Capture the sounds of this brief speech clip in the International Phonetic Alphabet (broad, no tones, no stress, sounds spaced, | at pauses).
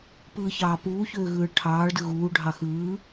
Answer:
p ɯː ç ɑː p uː ç øː ɣ ɯː ɭ ʈʰ ɑː ɭ d ɯ ɣ uː ɖʱ ɑ x ɯː